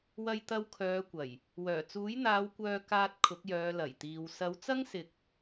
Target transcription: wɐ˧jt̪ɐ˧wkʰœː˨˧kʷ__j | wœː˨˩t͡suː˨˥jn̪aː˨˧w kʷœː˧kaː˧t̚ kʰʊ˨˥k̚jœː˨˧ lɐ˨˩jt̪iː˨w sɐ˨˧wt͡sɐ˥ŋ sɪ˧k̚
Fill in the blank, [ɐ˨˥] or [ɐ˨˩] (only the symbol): ɐ˨˩